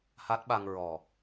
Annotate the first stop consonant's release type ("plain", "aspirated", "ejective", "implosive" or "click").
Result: plain